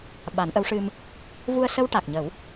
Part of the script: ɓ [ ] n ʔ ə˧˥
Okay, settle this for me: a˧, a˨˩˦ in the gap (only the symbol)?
a˨˩˦